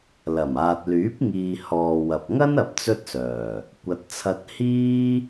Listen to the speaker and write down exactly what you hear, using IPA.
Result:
l ɐ˨˩ m aː˨ t̚ l yː˨˥ p̚ ŋ iː˨ h ɔː˨ w ɐ˨ p̚ ŋ ɐ˥ n ɐ˧ p̚ t͡s ɵ˥ t̚ s œː˨˩ | kʷ ɐ˨˥ t̚ t͡sʰ ɐ˧ t̚ h iː˥

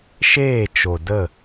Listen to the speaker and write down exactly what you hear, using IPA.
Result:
ʃ eː˦˨ t͡ʃ o˨ d ə˦˨

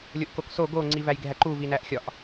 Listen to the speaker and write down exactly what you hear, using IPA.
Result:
lʲ o ʔ k o k s o ɡ o ŋ͡ǀ i v æ j ɡʱ æ ǃ u v i n æ ʔ xʲ ɒ ʔ

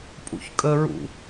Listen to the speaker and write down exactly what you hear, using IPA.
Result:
pʼ ṵ ç kʼ ə ɹ ṵ

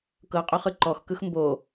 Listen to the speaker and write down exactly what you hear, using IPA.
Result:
k ɤ qʼ ɵ χ ɯ ǃ ɔ x k ɯ x m b o

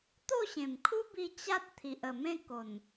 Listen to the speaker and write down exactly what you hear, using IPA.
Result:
t̪ o˥˧ ɕ ẽ˨˩ m kʰ u˦ b i˧ t͡ɕ a˦ t̚ t̪ʰ i˨ ʔ ə˨˩ m ẽ˥˧ k o˨˩ n

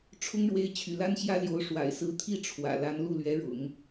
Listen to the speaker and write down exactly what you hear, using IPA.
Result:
ʈ͡ʂʰ ʊ˥ ŋ ɻ w e˧˥ ɪ̯ t͡ɕʰ y̰˨˩ l a˥ n ɕ j ä˥ l j o˧˥ ʊ̯ ʂ w a̰˨˩ ɪ̯ s ɹ̩˧˥ t̪ʰ i˥˩ ʈ͡ʂʰ w ä̰˨˩ l a˧˥ n l u˥˩ l ɥ ɛ˧˥ ɻ ʊ̰˨˩˦ ŋ

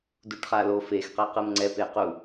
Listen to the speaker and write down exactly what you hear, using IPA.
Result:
d u ʈ χ a l o f e x q ɛ q ɯ m ŋ͡ǀ ɛ p e q u

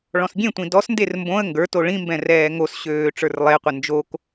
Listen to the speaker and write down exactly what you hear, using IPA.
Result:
ɭ ɔ̃ s ɡʲ ẽ tʷ ĩ d ɔ s n d e r m b õ ə̯ ŋ ɡ ə˞ t o ɭ ĩ m b ɛ̃ r ɛː ŋ o s ɕ øː ʈ͡ʂ ə˞ r lˠ e qʷ ɘ n d͡ʒ o k

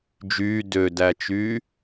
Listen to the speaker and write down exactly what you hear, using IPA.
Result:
d͡ʒ yː d ø d æ t͡ʃ yː

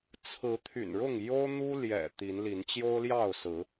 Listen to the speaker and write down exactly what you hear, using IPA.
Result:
t͡sʰ ɹ̩˨˦ t̪ʰ y̰˨˩ n ɻ ʊ˥˨ ŋ j o˦ ʊ̯ n̪ u˦ l j ɛ̰˨˩ t̪ i˨˦ n l i˨˦ n t͡ɕ j o˦ ʊ̯ l j ɑ˥˨ ʊ̯ s ɹ̩˨˦

